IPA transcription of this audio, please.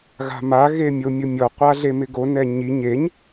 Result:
ɣ a̤ m a ɣ e mʲ o mʲ ʊ mʲ ɔ qʷ a ɮ e m ɪ ɡ o n ɛ ɲ i ɲ e ɲ

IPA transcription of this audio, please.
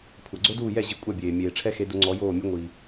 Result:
kʷʰ a˩ ɡ͡ǀ o˦˥ d uː˥˩ j ɛ˥˩ ʑ i˨˦ kʷʼ a˥˩ bʲ eː˩ mʲ eː˩ ʈ͡ʂʰ ɛ˦˥ x e˨˦ d ʊ˨˦ ŋ͡ǀ ɔ˨˦ j oː˥˩ mʲ ʊ˦˥ ŋʷ i˩

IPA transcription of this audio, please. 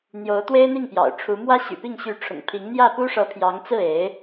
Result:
n̪ j o˧˥ ʊ̯ t̪ w e˥ ɪ̯ n̪ i˥˩ ŋ p j ɑ̰˨˩ ʊ̯ ʈ͡ʂʰ u˧˥ m w ä˥ ɕ y̰˨˩ p i˥˩ ŋ ɕ y˧˥ ʈ͡ʂʰ ʊ̰˨˩ ŋ pʰ i˧˥ ŋ n̪ j ä˥˩ p u˥ ʂ ɤ˧˥ pʰ j ɑ˧˥ ŋ t͡s ɹ̩˥˩ e˧˥ ɪ̯

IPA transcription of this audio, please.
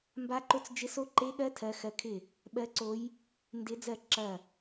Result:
m b a˧˥ ǃ o˧˥ t͡s d͡ʒ ɪ˧˥ s o˧˥ ǃ e˧˥ ɠ ɜ˧˥ tʰ ɜ˧˥ x ɜ˧˥ kʰ ɪ˥˩ | ɓ ɜ˧˥ ǀ o˧˥ j | n d ɪ˧˥ d͡z ɜ˥˩ ǁ ɐ˥˩

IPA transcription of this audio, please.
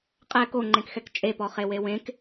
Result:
qʼ ɛ k o ŋ͡ǃ ẽ k x ɛ k t͡ʃʼ e p ɔ χ e w e w ẽ k

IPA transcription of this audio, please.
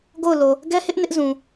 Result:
ɡ o˦˨ ʊ̯ l o˨ | ɡ ɛ˦ h ɪ˦ ʔ n ɪ˦ ʔ z ũ˨

